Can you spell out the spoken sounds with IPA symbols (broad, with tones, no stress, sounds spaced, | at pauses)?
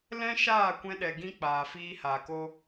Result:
l ɛ̃˦ ʃ aː˦˨ kʷ ɛ̃˧ ɗ ɛ˨ ɡ ĩ˧ k͡p aː˨ f iː˧ h aː˨ k o˧